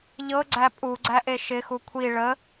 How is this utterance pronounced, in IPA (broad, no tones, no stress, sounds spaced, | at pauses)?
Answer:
ʎ ɤ ɡ͡ǀ æ pʼ u ɡ͡ǀ æ ʔ e ʃ ɪ x u kʷʰ i ɭ ə